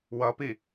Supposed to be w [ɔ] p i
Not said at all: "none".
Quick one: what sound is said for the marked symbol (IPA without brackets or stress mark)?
ʌ